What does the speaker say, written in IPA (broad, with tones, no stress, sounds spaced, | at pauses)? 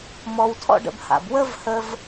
m ɔ˧ w tʰ ɔ̰˦ ɖ ə̰˧ b h a̰˨ b w ə˦ v h ə˧ v